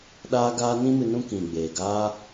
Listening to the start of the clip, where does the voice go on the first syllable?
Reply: high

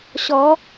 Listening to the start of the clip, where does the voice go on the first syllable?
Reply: rising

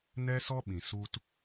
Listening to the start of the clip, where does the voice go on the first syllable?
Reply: high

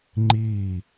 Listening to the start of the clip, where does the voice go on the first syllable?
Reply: falling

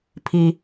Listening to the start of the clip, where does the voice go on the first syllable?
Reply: low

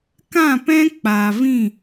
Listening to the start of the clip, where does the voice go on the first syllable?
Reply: falling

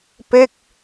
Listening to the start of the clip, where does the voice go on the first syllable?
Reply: falling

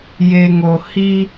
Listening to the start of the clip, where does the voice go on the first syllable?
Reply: low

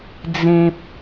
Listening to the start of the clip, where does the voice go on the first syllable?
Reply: low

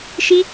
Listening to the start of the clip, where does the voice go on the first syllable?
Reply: high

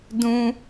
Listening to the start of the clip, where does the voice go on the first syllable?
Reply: high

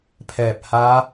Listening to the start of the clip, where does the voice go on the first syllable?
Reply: low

